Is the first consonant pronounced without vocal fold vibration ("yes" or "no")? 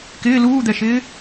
yes